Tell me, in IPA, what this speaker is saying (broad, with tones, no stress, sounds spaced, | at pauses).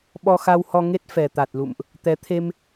ɓ ɔ˧ x a˧ w h ɔ˧ ŋ e˦˥ t̚ f ɛ˨˩ t̪ a˨˩ t̚ l ṵ˧˨ m ʔ | t̪ ɛ˨˦ t̪ʰ e˧ m